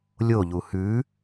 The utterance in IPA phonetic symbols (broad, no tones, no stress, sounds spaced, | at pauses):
lʲ o ʎ u h ʉ